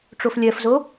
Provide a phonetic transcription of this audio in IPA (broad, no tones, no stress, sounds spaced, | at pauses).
ʈ͡ʂ o f lʲ ɜ f z o